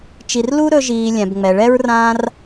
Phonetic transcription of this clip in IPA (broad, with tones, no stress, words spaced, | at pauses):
t͡ʃi˧r lu˦ɾɵ˧ʒiː˨ lʲɛ̃˨bŋ͡mɛ˨ɭɛ˦ɹ rãː˦r